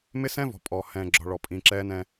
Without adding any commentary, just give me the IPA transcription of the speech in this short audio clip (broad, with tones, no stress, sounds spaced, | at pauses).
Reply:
m ɪ˦ s ɛ̃ː˦ v ɔ̤˨ pʼ ɔ˨ h ɛ̃ː˨ ɡ͡ǁ ɔ̤˨ ɭ ɔ˨ pʼ ĩː˨ ǁ ɛː˦ n ɛ̃˦